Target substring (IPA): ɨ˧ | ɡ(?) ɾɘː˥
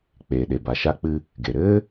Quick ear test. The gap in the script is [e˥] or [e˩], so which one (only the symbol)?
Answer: e˩